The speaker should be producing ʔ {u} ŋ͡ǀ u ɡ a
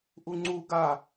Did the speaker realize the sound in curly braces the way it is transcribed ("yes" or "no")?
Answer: yes